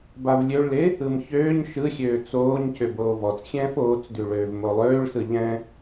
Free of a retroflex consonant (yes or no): no